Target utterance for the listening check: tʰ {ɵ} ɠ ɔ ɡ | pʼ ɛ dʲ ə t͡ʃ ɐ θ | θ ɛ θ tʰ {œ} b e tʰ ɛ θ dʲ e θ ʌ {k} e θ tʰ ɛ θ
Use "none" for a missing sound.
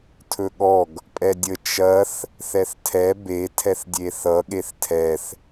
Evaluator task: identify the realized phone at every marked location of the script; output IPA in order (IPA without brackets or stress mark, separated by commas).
ɵ, ɛ, ɠ